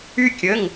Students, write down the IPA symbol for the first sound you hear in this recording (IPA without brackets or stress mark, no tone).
y